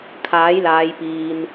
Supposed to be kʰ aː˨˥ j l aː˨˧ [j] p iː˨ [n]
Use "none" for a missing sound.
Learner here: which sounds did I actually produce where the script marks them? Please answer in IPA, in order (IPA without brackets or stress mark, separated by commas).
j, n